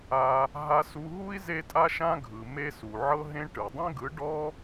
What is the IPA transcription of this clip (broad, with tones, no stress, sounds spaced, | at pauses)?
a˧ | ɦ a˧ s u˧ ɦ u˦ i̯ z e˦ tʼ a˦ ʃ ã˦ ɡʱ ɯ˨ m e˦ s u˨ ʕ ɤ˦ ɦ ẽ˦ ʈ ɯ˨ dˤ ẽ˦ ɡ ɯ˨˦ ɖ ɔ˦